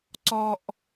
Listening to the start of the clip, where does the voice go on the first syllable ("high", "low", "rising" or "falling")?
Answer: high